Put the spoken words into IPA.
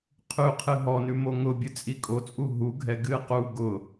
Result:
qʰ ʉ qʰ ɨ ɦ ɔ n ʉ m o ŋ ʊ bʲ ɨ t͡sʼ i kʼ o t͡sʼ u ɦ u ɡʱ ɛ ɡ ɨ q u ɡ ʊ

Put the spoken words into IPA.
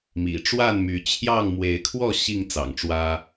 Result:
m ḭ˨˩ ʈ͡ʂ w a˥˨ n m y˨˦ t͡ɕʰ j ɑ˥˨ ŋ m w e˨˦ ɪ̯ kʰ w ɔ˥˨ ɕ i˥˨ ŋ t͡s ɑ̰˨˩ ŋ ʈ͡ʂ w ä˦

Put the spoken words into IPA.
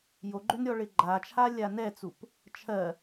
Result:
j o ɡ͡ǃ ø n ɾʲ ɔ ɭ ɪ ɡ͡ǃ a t͡ʃʰ a lʲ a n ɛ t͡s u p | t͡ʃʰ ɜ

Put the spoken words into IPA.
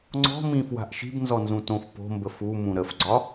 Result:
ŋ͡ǀ ɔ̤ m ĩ f w a̤ ʔ ʃ i̤ b n z ɔ n z ũ t õ f p o̤ m b ə f u m ũ ɾ ə f ɡ͡ǀ ɒ

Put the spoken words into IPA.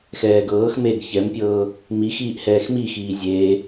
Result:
x ɛː ɡ ɤː x m eː ɡ ç ɛ m pʲ ɤː | m i x iː ʔ h ɛː x m i x iː zʲ e

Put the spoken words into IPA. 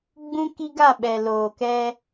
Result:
ɡ͡b ũ˦ k i˦ ɡ a˦˨ ɓ ɛ˨ l oː˨ k ɛ˦

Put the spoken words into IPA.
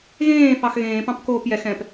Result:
ɣ ẽː f ɑ x ɣ ẽː p ɑ̃ p k oː p j ɛ x ɛ̃ p

